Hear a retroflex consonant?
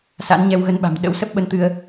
no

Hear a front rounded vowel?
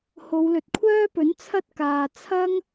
yes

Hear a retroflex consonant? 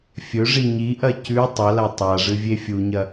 yes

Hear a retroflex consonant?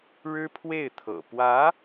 yes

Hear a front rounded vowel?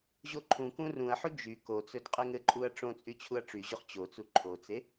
yes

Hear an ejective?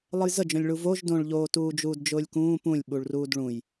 no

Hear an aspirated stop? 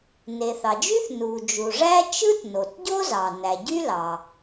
no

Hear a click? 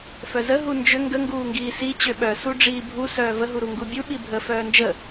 no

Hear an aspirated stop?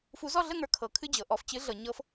yes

